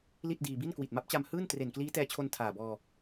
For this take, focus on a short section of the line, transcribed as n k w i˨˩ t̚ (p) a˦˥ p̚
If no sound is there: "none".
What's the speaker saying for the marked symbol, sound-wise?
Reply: m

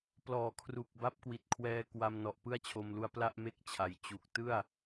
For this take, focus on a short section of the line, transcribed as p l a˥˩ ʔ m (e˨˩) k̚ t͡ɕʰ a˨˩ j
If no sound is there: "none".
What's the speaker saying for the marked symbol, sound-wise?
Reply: e˥˩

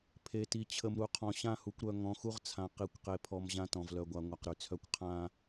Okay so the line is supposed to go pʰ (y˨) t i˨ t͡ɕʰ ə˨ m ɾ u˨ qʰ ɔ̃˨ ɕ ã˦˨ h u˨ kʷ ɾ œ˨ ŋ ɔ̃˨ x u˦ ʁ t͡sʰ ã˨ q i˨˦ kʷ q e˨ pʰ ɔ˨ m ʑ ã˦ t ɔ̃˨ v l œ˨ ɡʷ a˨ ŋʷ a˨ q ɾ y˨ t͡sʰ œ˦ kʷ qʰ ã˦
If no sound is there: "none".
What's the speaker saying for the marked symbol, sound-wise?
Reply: e˨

